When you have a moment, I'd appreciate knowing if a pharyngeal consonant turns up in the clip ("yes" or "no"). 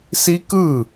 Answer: no